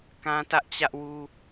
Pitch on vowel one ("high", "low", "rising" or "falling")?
high